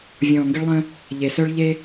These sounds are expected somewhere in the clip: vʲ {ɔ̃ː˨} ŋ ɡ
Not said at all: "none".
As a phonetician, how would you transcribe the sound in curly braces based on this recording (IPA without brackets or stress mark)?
ɔ̃ː˨